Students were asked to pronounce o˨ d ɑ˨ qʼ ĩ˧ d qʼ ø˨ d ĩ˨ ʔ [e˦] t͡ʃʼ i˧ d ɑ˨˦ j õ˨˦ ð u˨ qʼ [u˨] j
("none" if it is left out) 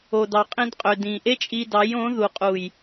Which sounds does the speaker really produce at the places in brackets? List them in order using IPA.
e˦, u˨

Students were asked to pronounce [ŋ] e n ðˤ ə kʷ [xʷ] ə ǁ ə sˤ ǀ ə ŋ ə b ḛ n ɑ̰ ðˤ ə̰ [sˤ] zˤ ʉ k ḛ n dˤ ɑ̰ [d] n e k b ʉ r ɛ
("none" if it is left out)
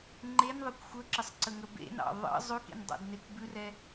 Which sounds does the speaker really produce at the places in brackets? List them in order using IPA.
ŋ͡ǃ, xʷ, none, d

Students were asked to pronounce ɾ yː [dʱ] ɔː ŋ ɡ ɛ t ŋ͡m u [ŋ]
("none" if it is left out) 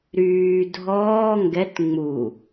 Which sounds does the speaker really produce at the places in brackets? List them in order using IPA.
dʱ, none

